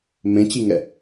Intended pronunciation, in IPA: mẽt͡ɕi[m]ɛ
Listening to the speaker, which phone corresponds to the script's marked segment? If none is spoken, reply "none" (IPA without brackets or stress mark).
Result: ŋ